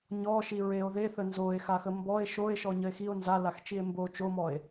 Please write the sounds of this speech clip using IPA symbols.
ɲ ɔ ʃ i ɹ e o̯ ð e θ ə n z o e̯ x a x ə m b ɔ e̯ ʃ o e̯ ʃ ɔ ɲ ə e̯ x i o̯ n z a l a x t͡ʃ i e̯ m b o t͡ʃ o m ɔ e̯

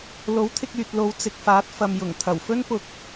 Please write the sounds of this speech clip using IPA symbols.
l o˨˥ w t̪ʰ ɪ˧ k̚ yː˨ t̚ l o˨˧ w t͡s ɪ˨ k̚ f aː˨˥ t̚ f ɐ˨ m j ʊ˨˩ ŋ t̪ʰ ɐ˨˩ w f ɵ˥ n p ʊ˧ k̚

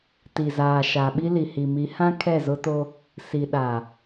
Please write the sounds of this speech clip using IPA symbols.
t i˨ z aː˨ ʃ a˨ ɓ i˦ l i˨ h i˨ m i˨˦ h ã˦ kʰ ɛ˦˨ z ʊ˦ t o˦ | s i˨ ɗ a˨

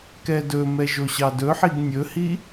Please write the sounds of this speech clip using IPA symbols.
k ɛ d ɵ m ɛ ʒ o ɕ ɑ d ɵ ħ i ɡ nʲ ɵ h i

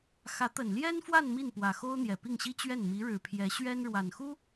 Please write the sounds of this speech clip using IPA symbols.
x ä˧˥ t̪ ə˨˩ n l j ɛ˥ n f w a˥˧ n m i˥˩ n p w ä˨˩ x o˥ ʊ̯ n̪ j ɛ˨˩ p i˥˩ ŋ ɕ i˥ t͡ɕ ɥ ɛ˥˩ n m i˧˥ ɻ ɻ̩˨˩ pʰ j ɛ˧˥ ɕ ɥ ɛ˥ n ɻ w a˨˩ n x u˥

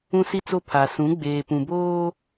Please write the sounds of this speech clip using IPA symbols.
ũ˦ s i˦ t͡s o˦ pʰ a˨ s ũ˨˦ ɡ͡b eː˨ p ũ˨ b oː˦

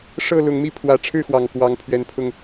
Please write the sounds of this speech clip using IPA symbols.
ʂ ɤ˥˨ l ʊ˨˦ ŋ m i˥˨ pʰ w ä˨˦ ʈ͡ʂʰ ɻ̩˥˨ x w ɑ˨˩ ŋ k w ɑ˨˦ ŋ pʰ ɥ ɛ˨˩ n pʰ ʊ˥˨ ŋ

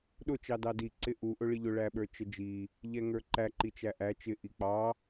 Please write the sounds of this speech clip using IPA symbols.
ɗ ʊ t͡ʃ ɑ d ɑ d i ǀ ɪ ʔ u ʔ ʊ ɭ i ʎ ʊ ɭ æ ɓ ə˞ t͡ʃ ə d͡ʒ i | ʎ ɛ ŋ ə˞ ǃ æ ǃ i t͡ʃ æ ʔ æ t͡ʃ ɪ ʔ i k͡p ɑ

